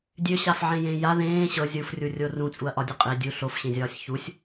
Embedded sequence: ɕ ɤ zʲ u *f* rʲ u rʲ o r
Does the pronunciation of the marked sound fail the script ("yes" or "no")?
no